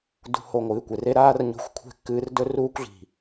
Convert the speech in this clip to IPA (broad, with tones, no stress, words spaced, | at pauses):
dṳ˨ho˨ ŋʷɨː˨kʷe˨re˧ ɾaː˦rɲo̤˧xʷkʷʰe̤˦˨kːɨː˧r dɵ˧ruː˧kʷɮi̤˨